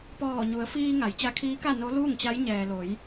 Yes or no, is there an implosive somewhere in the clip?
no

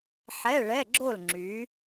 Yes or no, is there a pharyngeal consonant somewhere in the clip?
yes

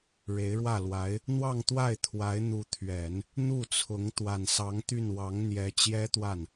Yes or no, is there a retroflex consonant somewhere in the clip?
yes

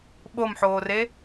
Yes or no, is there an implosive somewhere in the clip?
yes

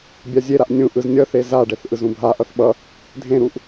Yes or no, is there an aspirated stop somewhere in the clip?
no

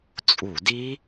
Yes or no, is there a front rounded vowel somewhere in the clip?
no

